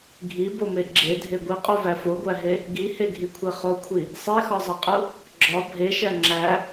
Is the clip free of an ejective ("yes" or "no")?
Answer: no